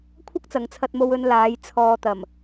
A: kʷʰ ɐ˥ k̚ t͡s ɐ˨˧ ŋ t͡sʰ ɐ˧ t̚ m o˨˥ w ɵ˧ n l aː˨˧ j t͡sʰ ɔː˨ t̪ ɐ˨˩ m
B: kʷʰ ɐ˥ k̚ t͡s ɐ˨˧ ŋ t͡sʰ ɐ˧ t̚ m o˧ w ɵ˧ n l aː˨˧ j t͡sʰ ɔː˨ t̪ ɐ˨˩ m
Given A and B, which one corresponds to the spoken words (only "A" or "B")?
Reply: B